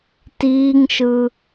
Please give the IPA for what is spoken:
t iː ŋ ʃ ɯ

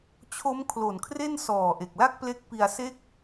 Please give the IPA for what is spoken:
t͡ɕʰ o˦˥ m kʰ l o˨˩ n kʰ r e˥˩ n s ɔː˨˩ ʔ e˨˩ k̚ l a˥˩ k̚ p l e˦˥ k̚ p i˧ a̯ s e˥˩ k̚

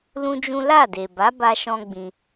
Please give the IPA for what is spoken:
l ũ˦ d͡ʒ ũ˦ l a˦˨ d e˨ b a˨˦ b a˦ ʃ ɔ̃˦ ɡ͡b ĩ˧

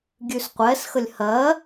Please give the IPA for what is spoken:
ɡʲ ʉ s qʷ ɛ s x ə lʲ h ɜ

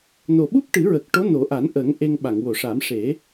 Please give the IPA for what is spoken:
n o˨˩ ɓ u˦˥ p̚ ʈ ɨ˨˩˦ ɹ ə˨˩ k̚ ʈ o˧˥ n o˨˩˦ ʔ a˨˩˦ n ʔ əː˨˩˦ ŋ ʔ e˧ ŋ ɓ a˨˩˨ ŋ w o˨˩˨ ʂ a˨˩˦ m ʂ e˨˩˦

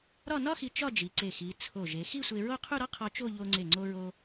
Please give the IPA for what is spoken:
ɾ ɒ˥˧ n ɒ˥ x i˧ t͡ʃ ɒ˥˧ d͡ʒ i˩˧ ǀ e˧˩ x i˩˧ t͡sʰ o˧˩ ʒ e˩˧ x i˥˧ sʷ e˧ ɹ o˥˧ qʰ u˥˧ ɾ ɒ˥ qʰ ɒ˧ t͡ʃ o˥˧ ʎ o˧ ŋ͡ǀ e˧˩ ŋ͡ǀ o˧ ɹ o˧

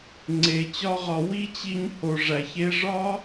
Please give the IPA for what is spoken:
ŋ͡ǀ e˨ t͡ɕ ɒ˦ ʁ ɒ˧ w i˦ t͡ɕ i˧ ɲ h o˨ ʐ æ˨ ç e˧ ʐ ɒ˦

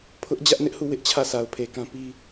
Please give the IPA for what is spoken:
pʰ ʊ˦ ʔ d͡ʑ ä˦ ʔ n ɪ˦ ʔ h u˦˨ w ɪ˦ ʔ t͡ɕʰ ä˦˨ sʰ a˨ ʊ̯ pʰ e˨ k ã˦ p i˦

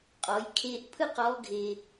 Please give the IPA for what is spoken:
qʼ ɔ˩˧ j kʰ e˧ ʔ pʰ ɯ˥ q ɔ˧˥ ɡʱ e˧

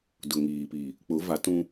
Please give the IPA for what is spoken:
d ʊ˨ ŋ iː˨ p i˨ | k͡p ʊ˨˦ v a˨˦ t ũ˦

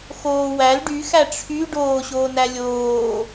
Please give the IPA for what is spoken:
x oː w æ l ɖ y x æ ʈ͡ʂʰ y ɖ oː ɕ oː n æ lʲ oː

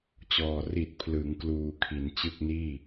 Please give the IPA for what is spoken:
t͡ɕ ɔː˨˩ r i˨˩ t̚ pʰ l ɯ˩˦ ŋ k l uː˧ kʰ i˩˦ n t͡ɕ ɯ˥˩ k̚ n iː˥˩

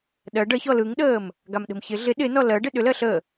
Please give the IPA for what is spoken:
ɗ ɜ ɖ ɜ ç ɔ l ɯ ŋ ɗ əː m | ɡ a m ɗ ə̤ m ç ɪ ɮ ɪ ɗ ɪ n ɔ l ɜ ɖ ɪ ɗ ʏ l ɜ ɬ ə

